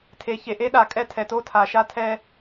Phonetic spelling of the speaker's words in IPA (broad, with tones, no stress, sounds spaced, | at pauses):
tʰ e˨ ç e˨ ʔ e˦ ɗ a˨ kʼ ɛ˦ tʰ ɛ˨ t o˦ tʰ a˨ ʃ a˦ tʰ ɛ˦